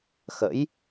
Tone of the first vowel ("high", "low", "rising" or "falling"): rising